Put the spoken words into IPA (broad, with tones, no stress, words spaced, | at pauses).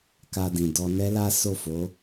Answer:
ka˧dĩ˨ dɔ˧nɛ˦ la˦ so˦˨fo˨˦